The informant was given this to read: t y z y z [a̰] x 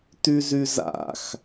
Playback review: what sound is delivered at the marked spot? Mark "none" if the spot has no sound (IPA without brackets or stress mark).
a̰